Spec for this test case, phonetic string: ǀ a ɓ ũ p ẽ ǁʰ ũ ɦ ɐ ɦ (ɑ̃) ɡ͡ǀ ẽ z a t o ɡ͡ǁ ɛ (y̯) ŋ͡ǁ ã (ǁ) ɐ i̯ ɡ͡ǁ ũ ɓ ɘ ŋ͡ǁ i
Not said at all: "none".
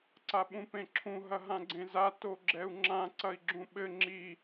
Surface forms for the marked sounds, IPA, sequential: ã, u̯, ǀ

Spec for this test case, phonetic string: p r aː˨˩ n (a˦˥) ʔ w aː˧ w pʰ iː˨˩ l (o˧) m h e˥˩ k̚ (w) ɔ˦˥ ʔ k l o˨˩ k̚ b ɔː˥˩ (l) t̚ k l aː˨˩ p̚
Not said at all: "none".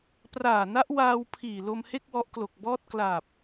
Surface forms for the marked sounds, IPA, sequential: a˦˥, o˧, w, none

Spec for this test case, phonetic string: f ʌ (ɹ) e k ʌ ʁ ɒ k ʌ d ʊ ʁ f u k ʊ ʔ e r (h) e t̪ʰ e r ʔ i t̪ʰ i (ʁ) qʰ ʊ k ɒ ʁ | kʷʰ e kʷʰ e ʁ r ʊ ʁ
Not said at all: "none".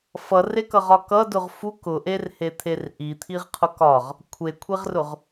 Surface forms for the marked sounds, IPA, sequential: r, h, ʁ

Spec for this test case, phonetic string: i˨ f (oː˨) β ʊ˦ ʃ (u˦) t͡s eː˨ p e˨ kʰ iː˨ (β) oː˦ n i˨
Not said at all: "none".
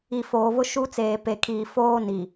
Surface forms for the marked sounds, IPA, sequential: oː˨, u˦, f

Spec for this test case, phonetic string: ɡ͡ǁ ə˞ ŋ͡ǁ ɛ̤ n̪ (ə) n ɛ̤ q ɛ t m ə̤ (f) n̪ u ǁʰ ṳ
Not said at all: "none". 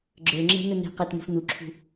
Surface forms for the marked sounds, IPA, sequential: ə, f

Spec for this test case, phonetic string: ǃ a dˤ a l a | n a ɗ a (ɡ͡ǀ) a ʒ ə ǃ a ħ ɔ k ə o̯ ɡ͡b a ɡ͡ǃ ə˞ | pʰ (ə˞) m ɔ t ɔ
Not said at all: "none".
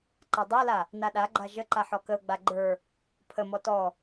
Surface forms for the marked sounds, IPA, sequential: ɡ͡ǃ, ə

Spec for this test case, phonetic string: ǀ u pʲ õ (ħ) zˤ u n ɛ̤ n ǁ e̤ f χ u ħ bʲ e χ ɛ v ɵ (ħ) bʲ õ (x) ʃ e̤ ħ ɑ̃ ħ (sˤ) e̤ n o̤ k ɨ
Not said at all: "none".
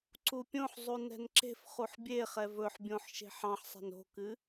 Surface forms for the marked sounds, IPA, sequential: ħ, ħ, ħ, sˤ

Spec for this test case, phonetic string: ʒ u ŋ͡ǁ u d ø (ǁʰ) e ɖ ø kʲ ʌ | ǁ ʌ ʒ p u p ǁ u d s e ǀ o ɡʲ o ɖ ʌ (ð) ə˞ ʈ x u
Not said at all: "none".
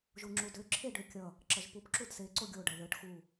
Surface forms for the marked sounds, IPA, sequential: ǁʰ, ð

